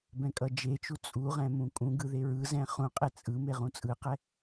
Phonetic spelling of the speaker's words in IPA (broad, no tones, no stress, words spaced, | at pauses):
bɛ̃kʼʌd͡ʒet͡ʃu t͡sʼuʁɛ̃ mũkʼũɡɯ ðeɹɯzɛ̃ χũqʼe t͡sʼɯ meʁũt͡sʼɯqɛ